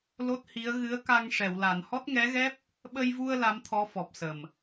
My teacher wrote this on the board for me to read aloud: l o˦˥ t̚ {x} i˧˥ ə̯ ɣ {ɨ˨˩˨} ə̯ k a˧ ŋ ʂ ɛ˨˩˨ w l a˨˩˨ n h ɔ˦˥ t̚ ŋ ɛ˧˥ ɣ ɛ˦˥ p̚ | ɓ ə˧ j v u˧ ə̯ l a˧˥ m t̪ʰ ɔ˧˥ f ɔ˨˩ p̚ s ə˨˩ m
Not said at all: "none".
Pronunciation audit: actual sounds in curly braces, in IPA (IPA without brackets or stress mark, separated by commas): h, ɨ˧˥